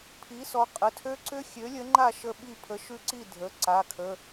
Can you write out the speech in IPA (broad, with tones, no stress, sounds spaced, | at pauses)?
pʰ i˨˥ s ɔ˩˧˩ qʼ ə˩˧˩ tʰ ø˦˥ ǀ ʏ˦˥ xʲ ø˨˥ lʲ ə˨˥ ŋ͡ǃ a˥˨ ʃ ə˥˨ ɓ i˥˨ pʰ ə˨˥ ʃ ʉ˦˥ ǀ i˥˨ dʱ ə˩˧˩ ǀ a˩˧˩ kʰ ə˩˧˩